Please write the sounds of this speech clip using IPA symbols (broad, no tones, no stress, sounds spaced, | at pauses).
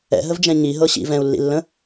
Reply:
ɛ̰ ɦ ə v d͡ʒ ɛ̃ ɲ i ɦ ɤ ɕ ḭ v ɛ̃ u̯ lː ḭ lː ə̃